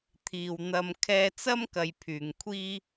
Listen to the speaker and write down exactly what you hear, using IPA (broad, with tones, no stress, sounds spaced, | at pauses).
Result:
t̪ʰ iː˨ w n̪ ɐ˧ m kʰ ɛː˧ t͡s ɐ˥ m k ɐ˨ j pʰ yː˨ ŋ kʷʰ iː˥